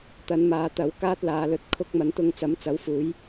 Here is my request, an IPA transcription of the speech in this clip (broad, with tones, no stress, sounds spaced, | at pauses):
t̪ ɐ˨˧ n m aː˨˧ t̪ ɐ˨˥ w k aː˥ t̚ l aː˨˧ l ɵ˨˥ t̚ kʰ ʊ˧ k̚ m ɐ˨˥ n t̪ ʊ˧ ŋ t͡s ɐ˨˥ m t͡s ɐ˨˥ w f uː˨˥ j